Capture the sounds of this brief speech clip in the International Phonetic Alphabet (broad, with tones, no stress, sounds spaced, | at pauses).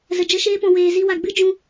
z ə˨ d͡ʒ ə˦ ʃ eː˦ p ɔ̃˧ w eː˧ z i˦ w a˧ ɡ͡b ɨ˦ d͡ʒ ũ˧